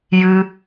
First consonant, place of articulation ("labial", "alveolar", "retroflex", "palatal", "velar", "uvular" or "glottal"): palatal